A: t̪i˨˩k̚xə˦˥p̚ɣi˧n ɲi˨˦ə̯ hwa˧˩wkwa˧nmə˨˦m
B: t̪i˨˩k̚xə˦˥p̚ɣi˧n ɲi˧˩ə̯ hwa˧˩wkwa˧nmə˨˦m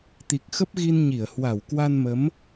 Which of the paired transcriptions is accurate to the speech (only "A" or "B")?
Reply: B